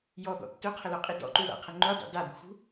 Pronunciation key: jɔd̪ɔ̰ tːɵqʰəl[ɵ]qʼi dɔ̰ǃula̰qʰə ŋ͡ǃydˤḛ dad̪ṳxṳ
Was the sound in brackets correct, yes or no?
yes